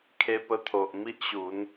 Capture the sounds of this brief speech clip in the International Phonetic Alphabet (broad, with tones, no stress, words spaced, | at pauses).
kʰe˧pə˧t̪ʰo˨ʔ mi˦ʔɕu˨˦n